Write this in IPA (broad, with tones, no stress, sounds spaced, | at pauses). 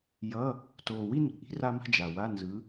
j ʌ˧˥˧ | t oː˨˩ w i˥˧ n ṳ˨˩ ʔ i̤˧˥˧ r a˥ m a̤˥ d͡ʒ a˨˩ w a˧˥˧ n z ɯ˨˦